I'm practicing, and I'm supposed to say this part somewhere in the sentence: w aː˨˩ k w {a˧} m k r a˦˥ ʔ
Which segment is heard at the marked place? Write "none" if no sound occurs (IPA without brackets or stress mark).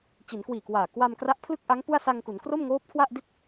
a˧